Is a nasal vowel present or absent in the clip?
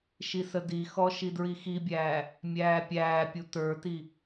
absent